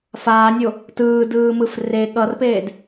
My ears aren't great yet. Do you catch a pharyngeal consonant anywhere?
no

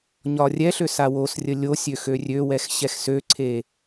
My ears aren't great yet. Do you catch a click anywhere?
yes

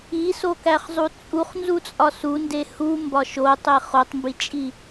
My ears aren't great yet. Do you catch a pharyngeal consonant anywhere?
no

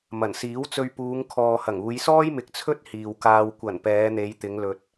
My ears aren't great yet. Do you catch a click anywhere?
no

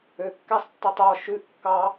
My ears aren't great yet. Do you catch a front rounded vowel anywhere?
yes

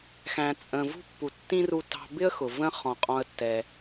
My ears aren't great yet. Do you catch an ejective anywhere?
yes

